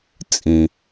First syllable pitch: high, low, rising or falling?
low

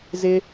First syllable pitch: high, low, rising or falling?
low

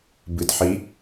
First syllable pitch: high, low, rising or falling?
low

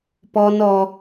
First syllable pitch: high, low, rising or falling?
high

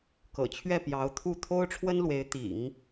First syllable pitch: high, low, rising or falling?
low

